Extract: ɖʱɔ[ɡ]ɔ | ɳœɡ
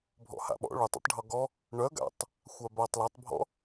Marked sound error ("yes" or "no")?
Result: no